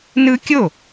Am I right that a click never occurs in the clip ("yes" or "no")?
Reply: yes